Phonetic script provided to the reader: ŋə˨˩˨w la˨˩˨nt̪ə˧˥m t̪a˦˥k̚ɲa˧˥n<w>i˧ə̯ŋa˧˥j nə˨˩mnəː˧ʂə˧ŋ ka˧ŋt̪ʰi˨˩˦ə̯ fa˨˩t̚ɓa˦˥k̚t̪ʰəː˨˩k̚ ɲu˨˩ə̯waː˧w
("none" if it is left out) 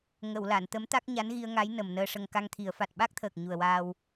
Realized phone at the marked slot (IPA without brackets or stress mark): ɣ